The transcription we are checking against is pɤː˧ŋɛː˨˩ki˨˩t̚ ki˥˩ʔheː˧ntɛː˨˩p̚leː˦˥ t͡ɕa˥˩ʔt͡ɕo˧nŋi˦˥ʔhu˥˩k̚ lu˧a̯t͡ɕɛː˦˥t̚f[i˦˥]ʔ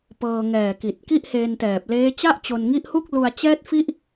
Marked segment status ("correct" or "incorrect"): correct